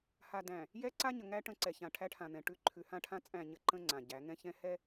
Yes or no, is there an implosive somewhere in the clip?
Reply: no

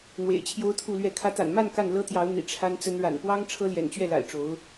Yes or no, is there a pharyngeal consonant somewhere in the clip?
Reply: no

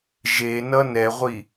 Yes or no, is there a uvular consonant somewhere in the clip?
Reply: yes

